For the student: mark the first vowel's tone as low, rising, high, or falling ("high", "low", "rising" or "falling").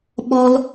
high